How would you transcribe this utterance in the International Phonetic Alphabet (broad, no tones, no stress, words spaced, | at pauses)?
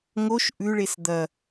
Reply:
ŋoʃ ʔʉɭes d̪ɐ